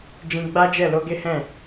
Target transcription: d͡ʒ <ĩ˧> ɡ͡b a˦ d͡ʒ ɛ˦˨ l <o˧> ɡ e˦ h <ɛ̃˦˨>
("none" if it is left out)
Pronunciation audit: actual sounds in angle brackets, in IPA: ĩ˧, o˧, ɛ̃˦˨

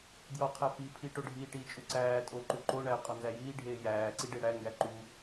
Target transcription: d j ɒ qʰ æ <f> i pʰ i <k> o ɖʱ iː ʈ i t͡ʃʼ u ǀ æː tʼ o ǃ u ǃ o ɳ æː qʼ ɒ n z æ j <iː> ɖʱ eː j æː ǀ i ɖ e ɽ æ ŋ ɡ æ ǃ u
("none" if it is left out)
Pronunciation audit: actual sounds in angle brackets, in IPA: f, ʈ, iː

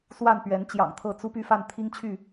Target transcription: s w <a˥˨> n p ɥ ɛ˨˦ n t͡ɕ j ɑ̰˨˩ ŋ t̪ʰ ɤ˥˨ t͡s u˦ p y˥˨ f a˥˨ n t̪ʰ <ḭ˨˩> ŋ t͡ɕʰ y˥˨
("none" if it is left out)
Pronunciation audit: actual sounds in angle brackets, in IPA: a˥˨, i˦

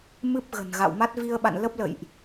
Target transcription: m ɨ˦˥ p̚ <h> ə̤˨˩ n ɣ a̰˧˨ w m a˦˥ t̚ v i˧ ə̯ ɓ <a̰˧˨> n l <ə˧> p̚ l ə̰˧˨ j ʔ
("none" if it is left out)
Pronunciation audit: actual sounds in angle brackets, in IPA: ɣ, a̰˧˨, ə˦˥

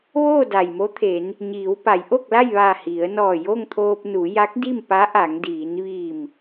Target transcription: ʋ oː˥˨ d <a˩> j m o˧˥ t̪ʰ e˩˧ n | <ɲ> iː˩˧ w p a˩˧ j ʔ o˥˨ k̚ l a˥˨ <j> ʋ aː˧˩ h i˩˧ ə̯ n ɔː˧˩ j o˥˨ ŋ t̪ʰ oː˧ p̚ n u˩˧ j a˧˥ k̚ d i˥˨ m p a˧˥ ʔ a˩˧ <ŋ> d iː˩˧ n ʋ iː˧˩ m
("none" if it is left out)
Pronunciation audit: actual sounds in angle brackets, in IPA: a˩, ɲ, j, ŋ

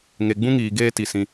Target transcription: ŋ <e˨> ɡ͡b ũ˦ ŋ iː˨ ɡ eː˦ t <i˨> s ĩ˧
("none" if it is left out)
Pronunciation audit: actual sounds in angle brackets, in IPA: e˨, i˨

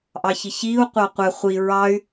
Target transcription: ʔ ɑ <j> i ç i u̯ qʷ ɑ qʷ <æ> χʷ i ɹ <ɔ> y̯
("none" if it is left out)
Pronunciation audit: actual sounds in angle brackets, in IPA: ç, æ, ɑ

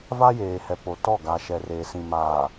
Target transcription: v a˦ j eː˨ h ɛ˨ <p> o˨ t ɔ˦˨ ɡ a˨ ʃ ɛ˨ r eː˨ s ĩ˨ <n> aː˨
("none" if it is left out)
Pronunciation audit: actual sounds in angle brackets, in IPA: p, m

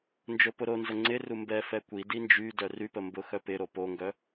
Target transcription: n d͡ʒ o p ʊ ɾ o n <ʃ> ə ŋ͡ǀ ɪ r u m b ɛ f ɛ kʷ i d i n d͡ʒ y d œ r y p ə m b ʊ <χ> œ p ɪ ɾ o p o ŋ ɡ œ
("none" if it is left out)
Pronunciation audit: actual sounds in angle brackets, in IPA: z, x

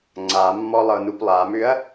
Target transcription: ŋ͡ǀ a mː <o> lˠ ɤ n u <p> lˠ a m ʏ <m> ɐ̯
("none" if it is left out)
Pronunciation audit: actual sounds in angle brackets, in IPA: ɔ, p, none

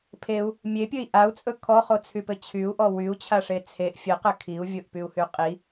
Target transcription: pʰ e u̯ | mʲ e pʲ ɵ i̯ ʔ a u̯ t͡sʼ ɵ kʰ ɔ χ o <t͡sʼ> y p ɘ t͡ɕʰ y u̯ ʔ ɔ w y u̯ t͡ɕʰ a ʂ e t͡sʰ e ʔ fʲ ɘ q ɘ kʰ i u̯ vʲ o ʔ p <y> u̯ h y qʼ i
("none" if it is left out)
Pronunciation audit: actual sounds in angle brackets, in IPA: t͡sʰ, y

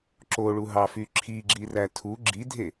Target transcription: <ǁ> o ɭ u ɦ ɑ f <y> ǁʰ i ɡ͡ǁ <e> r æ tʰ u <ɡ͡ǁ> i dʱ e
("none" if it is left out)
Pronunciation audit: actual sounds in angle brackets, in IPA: ǁ, y, i, ɡ͡ǁ

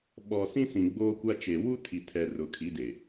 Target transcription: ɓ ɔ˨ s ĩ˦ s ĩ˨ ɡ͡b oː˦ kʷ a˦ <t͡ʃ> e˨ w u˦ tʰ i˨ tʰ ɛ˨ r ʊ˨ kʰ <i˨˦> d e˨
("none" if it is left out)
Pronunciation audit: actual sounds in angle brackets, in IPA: t͡ʃ, i˨˦

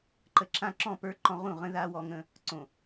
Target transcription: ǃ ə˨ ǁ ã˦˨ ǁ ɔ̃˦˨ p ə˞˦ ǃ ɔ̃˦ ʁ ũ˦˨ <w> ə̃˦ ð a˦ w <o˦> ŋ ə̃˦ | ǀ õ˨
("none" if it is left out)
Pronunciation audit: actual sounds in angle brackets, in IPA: ʁ, ɔ˦

